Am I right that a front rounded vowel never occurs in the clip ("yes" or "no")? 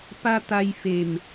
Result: yes